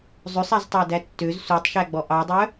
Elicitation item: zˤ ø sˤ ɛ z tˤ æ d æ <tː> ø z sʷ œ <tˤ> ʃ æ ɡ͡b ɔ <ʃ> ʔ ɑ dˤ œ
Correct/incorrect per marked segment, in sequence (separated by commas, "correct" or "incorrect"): correct, correct, incorrect